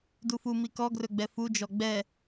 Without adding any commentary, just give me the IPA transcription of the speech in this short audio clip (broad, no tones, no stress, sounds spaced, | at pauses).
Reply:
d u f u m i k ɔ ɡ r ɵ ɡ͡b ɛ f u d͡ʒ ɔ ɡ͡b ɛ